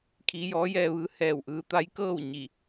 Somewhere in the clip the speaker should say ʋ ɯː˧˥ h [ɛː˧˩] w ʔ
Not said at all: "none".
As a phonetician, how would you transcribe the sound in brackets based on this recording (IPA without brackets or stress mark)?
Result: ɛː˧˩